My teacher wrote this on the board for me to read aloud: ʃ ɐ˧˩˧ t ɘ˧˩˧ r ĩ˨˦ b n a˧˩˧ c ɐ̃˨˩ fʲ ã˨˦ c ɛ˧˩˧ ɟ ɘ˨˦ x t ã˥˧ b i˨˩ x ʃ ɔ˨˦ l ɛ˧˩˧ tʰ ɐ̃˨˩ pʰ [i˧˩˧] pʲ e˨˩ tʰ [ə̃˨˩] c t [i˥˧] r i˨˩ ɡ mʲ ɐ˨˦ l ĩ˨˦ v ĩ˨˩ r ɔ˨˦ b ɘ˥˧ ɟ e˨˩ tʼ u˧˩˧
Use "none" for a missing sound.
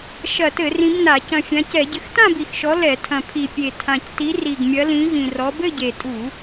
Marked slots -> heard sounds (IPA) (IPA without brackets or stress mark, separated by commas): i˨˩, ã˨˩, i˨˦